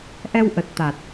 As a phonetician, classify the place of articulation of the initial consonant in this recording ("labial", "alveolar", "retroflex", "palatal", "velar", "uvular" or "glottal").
glottal